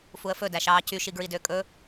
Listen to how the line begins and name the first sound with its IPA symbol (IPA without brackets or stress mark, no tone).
f